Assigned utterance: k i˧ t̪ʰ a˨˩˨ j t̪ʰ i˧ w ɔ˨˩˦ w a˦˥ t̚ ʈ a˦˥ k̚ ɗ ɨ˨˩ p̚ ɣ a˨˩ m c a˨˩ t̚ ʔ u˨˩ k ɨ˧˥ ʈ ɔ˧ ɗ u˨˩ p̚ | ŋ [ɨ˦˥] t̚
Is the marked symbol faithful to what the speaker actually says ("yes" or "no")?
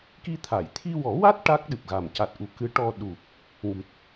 no